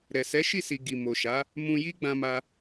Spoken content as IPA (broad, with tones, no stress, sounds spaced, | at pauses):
ɾ ɛ˨ s ɛ˨˦ ʃ i˦˨ s i˨ ɡ i˨ m o˨ ʃ a˨˦ | m ũ˧ j i˦ ɡ͡b ã˧ m a˧